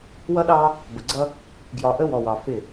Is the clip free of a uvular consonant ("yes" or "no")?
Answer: yes